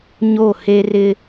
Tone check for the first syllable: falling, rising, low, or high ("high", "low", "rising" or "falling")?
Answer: falling